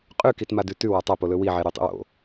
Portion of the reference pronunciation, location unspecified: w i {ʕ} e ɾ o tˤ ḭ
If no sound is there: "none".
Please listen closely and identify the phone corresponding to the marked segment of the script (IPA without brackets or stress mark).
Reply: ʕ